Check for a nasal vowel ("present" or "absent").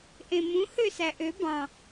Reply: present